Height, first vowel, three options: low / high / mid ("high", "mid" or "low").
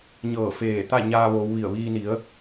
mid